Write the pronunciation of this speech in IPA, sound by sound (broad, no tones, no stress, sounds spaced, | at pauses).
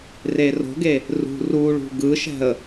r e r o̤ ɡ e | r ṳ r u ɭ ṳ ɡ ɯ ʃ ɛ̤ ə̯